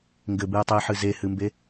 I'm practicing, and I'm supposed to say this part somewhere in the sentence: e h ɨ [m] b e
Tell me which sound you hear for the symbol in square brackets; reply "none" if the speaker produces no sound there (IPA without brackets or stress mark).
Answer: m